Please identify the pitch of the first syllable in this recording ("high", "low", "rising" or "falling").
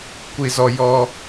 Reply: high